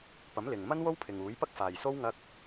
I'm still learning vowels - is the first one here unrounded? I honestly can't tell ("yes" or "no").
yes